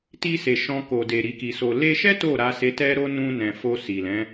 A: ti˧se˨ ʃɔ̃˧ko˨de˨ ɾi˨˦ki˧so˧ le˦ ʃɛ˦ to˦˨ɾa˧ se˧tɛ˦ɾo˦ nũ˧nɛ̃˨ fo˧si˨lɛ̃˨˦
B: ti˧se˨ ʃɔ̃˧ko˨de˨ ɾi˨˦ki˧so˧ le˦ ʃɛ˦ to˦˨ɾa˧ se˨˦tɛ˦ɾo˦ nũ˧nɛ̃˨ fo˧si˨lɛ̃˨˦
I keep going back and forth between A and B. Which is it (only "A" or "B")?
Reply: A